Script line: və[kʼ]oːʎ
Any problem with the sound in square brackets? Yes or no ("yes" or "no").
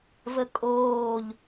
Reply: no